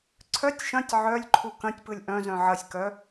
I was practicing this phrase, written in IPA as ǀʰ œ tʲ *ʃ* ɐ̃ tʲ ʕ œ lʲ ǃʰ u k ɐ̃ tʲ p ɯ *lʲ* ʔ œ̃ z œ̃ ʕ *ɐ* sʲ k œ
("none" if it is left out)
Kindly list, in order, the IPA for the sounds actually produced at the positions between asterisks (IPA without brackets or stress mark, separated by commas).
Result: ʃ, lʲ, ɐ